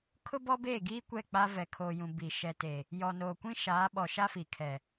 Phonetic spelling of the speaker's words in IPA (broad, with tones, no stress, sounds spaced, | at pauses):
kʰ ʊ˦ b ɔ˦ b eː˦˨ ɡ iː˦ kʷ ɛ˦˨ k͡p a˦ v ɛ˨ kʰ oː˨ j ũ˨ b i˨ ʃ ɛ˨ t e˨ | j ɔ˨ n oː˨ kʷ ĩ˦ ʃ aː˨˦ ɓ ɔ˨ ʃ a˦ f i˨ kʰ ɛ˨